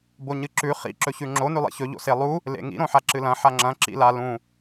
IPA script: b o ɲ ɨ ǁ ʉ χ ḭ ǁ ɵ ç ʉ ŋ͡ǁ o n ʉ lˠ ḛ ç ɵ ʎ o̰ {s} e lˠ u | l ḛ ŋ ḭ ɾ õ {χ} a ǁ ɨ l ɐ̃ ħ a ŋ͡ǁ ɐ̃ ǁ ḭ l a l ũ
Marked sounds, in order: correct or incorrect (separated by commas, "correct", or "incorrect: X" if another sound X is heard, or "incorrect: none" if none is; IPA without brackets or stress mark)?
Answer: correct, incorrect: ħ